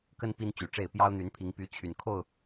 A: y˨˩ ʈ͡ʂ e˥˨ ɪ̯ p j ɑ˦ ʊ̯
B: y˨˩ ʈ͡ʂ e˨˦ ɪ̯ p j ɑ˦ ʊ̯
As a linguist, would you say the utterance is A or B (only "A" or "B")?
A